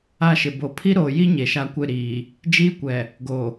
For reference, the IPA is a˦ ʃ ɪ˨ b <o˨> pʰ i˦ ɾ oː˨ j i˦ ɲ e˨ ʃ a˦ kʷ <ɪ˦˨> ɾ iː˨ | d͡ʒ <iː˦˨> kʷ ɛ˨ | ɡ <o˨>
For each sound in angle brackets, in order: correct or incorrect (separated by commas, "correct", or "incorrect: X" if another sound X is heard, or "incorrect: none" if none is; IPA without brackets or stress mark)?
correct, correct, incorrect: iː˦, correct